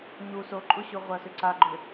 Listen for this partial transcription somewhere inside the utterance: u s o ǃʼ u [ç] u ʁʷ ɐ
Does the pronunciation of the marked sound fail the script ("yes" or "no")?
yes